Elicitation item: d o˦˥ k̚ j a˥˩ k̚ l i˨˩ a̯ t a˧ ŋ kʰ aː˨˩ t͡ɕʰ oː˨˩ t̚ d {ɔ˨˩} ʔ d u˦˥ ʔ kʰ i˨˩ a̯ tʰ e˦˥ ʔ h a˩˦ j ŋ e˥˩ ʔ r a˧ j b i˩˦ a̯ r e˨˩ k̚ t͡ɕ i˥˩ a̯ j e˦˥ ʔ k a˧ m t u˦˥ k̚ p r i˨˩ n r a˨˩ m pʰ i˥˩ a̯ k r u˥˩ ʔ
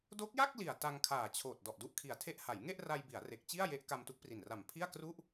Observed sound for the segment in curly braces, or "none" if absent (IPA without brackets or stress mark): ɔ˨˩